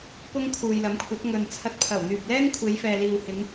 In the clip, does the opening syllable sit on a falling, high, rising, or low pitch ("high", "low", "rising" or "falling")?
high